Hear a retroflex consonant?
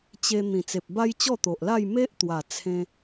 no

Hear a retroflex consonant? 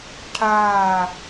yes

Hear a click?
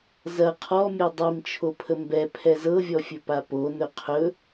no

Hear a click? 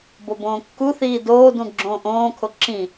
yes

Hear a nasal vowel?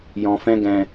yes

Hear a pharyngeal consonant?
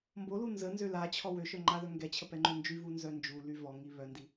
no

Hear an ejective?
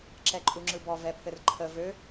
yes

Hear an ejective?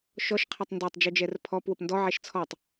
no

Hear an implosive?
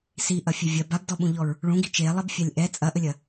yes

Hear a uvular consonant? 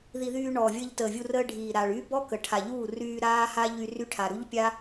no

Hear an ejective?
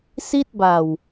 no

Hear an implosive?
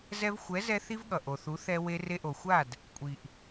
yes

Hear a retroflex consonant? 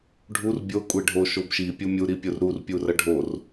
yes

